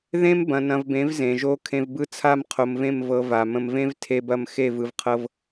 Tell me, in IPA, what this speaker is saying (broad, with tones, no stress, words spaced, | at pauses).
ðẽ˦mbɐ̃˨ nɐ̃˨vbẽ˨˦v zẽ˨ʒo˦ kʰẽ˨vbɯ˦˨ t͡sʰa˦m qʰo˨mvẽ˦˨m vɤ˦va˨ mə̃˨mvẽ˦v tʰe˦bɐ˦m xe˦˨vɯ˨vqʰɤ˦v